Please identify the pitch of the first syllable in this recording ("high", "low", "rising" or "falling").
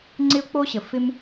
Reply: high